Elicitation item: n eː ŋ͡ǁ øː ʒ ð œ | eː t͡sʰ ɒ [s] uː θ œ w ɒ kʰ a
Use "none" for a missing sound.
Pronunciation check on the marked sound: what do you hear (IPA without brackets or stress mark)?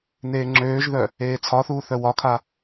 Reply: θ